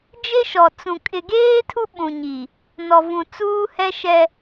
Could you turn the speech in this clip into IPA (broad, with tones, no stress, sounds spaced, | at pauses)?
d͡ʒ e˦ ʃ ɔ˨ t͡s ũ˨ kʼ ɪ˨ ɡ eː˦ tʰ u˦ ɓ ũ˨ ɲ i˨ | n ɔ˨ v ũ˨ t͡s uː˦ h ɛ˦ ʃ ɛ˦